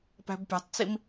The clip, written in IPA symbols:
pæ̤bpʲa̤tˤt͡sim

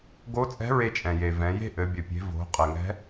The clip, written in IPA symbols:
ɡo˧˥t͡sʼɛ̤˧˥ ɹe˧t͡ʃʼɛ̃˩je˩ vɛ̃˩˧je̤˥ʔɘ˩˧ bʲɘ˩pʲe̤˩˧ vo̤˩˧ qʼɘ˩ŋɛ̤˧˥

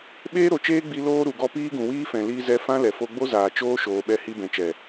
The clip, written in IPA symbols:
ɓeː˦ɾo˨t͡ʃeː˦ɡ͡bi˧ loː˧ ɾu˨ɡɔ˧ piː˦ɡũ˨wiː˦fɛ̃˨ liː˧zɛ˧fã˦ lɛ˨fo˧ɡ͡bo˦zaː˨ t͡ʃoː˦ ʃoː˧ ɓɛ˦˨ hi˧bɛ̃˨t͡ʃɛ˨

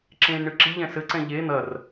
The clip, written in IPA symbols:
ǁẽːnɳɨǁiʎɛ̃ sɘǀɛ̃ ʎe n̪ɐr

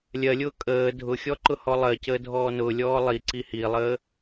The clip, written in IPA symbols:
lʲɜlʲʊː kʼəː dʱʊxʲɔ ǃʊhɔlˠɜcəː dʱɔːnʊːlʲɔː lˠiǀi hilˠəː

